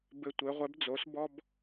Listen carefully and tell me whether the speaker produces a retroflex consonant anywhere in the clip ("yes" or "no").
no